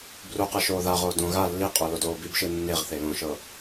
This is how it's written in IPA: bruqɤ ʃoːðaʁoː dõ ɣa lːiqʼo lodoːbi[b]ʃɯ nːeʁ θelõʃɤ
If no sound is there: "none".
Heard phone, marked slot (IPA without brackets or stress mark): b